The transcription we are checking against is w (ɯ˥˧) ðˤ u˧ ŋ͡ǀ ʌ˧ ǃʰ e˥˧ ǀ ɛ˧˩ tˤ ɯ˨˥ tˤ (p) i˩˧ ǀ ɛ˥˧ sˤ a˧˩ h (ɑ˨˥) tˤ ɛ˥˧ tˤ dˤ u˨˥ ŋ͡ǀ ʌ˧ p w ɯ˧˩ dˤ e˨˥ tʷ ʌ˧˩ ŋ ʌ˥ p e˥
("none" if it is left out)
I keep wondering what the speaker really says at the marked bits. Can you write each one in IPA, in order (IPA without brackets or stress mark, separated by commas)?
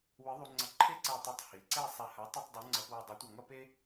ɯ˨˥, h, a˨˥